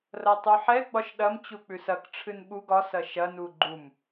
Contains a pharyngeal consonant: yes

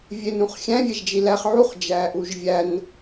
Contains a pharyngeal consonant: yes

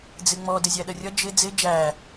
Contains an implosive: yes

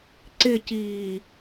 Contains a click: yes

